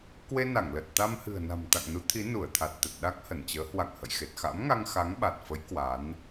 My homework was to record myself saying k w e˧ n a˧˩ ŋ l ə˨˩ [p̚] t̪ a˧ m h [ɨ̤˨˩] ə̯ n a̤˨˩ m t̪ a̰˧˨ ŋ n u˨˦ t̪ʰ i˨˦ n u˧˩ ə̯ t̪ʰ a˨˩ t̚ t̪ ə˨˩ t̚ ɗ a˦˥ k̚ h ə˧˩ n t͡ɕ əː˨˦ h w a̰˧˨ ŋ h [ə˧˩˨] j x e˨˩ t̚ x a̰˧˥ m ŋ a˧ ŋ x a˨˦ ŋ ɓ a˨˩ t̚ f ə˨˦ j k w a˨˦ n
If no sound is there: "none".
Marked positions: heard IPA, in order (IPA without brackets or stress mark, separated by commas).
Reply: t̚, ɨ̤˨˩, ə̰˧˨